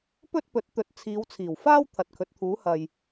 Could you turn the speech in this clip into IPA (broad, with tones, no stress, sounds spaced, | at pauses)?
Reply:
p ɵ˥ t̚ p ɵ˨˥ t̚ t̪ ɵ˨˥ t̚ t͡sʰ iː˨˧ w t͡sʰ iː˨˩ w f aː˥ w t̪ʰ ɐ˨ t̚ kʰ ɵ˨˥ t̚ t̪ʰ uː˨˥ h ɐ˨ j